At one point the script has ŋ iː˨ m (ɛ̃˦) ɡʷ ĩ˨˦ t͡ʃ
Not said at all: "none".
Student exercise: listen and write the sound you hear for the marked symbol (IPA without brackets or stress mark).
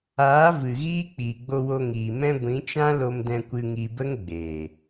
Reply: ɛ̃˧